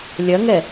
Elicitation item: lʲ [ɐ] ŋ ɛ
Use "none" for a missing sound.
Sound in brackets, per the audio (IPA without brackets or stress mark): ɐ